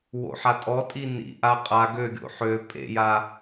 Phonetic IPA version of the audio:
w o̰ ħ a tʼ ɔ tʼ i n ḭ ʔ a qʼ a ɡ ø ɡʲ o̰ ħ ø pʼ ḛ j a

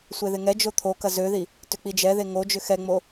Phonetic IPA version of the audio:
sʷ e ð ɪ ŋ ɛ d͡ʒ o t̪ʰ o k ɐ z ø ð i | t ʏ k͡p i d͡ʒ ɛ ð e ŋ o d͡ʒ ʏ x ɛ ŋ͡m o

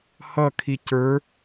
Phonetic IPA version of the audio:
h ʌ kʰ i c ə˞

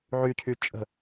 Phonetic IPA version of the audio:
ʕ y cʰ y t͡ʃʼ ə̤

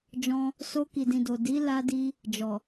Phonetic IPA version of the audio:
d͡ʒ ɔ̃˧ | s o˧ k i˨ d ĩ˨ d o˨ d i˨˦ l a˦ d i˦ | d͡ʒ ɔ˨

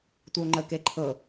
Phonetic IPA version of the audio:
tʷ ɯ o̯ ŋ͡ǃ ə k e ǃʰ ɤ

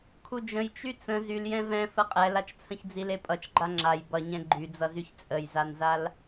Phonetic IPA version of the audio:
kʰ u d͡ʒ ə̃ j t͡ʃ y t͡s ə̃ z y l j ɛ̃ v ɛ̃ f ə qʼ ɛ l a t͡ʃ t͡sʰ ə̃ ç d͡z i l e pʼ ʌ t͡ʃ ɡ͡ǃ a ŋ͡ǁ a j b ʌ ɲ ɛ̃ ɡ͡ǃ y d͡z ʌ z y ç t͡sʼ ə j z a n z a l

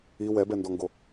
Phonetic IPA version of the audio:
i w ɛ b ɛ n d ɔ ŋ ɡ o

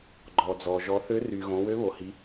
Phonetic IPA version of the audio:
ɡ͡ǃ ɔ˩ d͡z ɔ˩ ʒ ɔ˩˧ θ ø˧˥ r y˩ ɣ õ˩˧ w ø˧˥ β o˩ h i˩˧

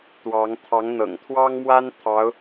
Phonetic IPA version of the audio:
t̪ w ɑ˧˥ ŋ t̪ʰ ɑ˧˥ ŋ n̪ ɤ̰˨˩ ŋ t̪ʰ w ɑ˥ ŋ m w a˥ n t̪ʰ ɑ˧˥ ʊ̯

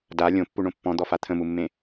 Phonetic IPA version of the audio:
d a lʲ õ pː u ɳ õ pː ɔ̃ d̪ ɔ f a t̪ʰ ə̃ m u mː ẽ

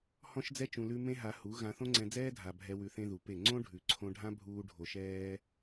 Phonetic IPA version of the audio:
h ɔ̃˦ ʃ d͡z ɛ˦ t͡ʃ ũ˧ l ʉ˦ m ẽ˦ ɦ a˧ h u˨˦ ɣ ã˧ θ õ˦ ŋ͡ǀ ɛ̃˧ d͡z ɛː˦ dʱ a˨ bʱ ɛ˧ w ʉ˧ θ ẽ˦ ð u˨ p e˦˨ ŋ͡ǀ õ˦ ɖʱ ʉ˨ ǀʰ õ˧ ɖʱ ã˦ bʱ uː˦ ɖʱ o˧ ʃ ɛː˦

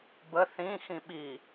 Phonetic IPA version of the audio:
b ə θ ĩ x ĩ ɓ i

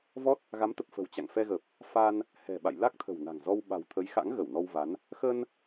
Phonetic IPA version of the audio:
v ɔ˦˥ t̚ | ɣ a˨˦ m t̪ ə˨˩ p̚ f ə̤˨˩ w t͡ɕ a̰˧˨ ŋ f ɛ˧ ɣ ə˨˩ p̚ | f a˧ n | h ɛ̤˨˩ ɓ a̰˧˨ j l a˦˥ k̚ t̪ʰ ə̤˨˩ w n a̤˨˩ ŋ z ɔ˧ w ɓ a̤˨˩ w t̪ʰ ə˨˦ j x a̰˧˥ ŋ ɣ ə˧˩ w n ɔ˧ w v a˨˦ n | x ə˧ n

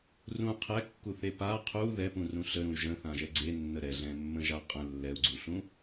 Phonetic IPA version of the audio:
r ũ qʰ ɛ kː u θ e p a qʰ u ð ɛ p ũ r ũ ɬ ə ɾ ũ y̯ ʒ ə̃ θ ã ʒ ɛ ɡ͡ǀ e nː ə ɾ ɛ ɮ ɛ̃ mː ə̃ ʒ a qʼ ə̃ lː ɛ u̯ ɡ͡ǀ u ɬ ũ

